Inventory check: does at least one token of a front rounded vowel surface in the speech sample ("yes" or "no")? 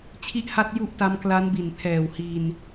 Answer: no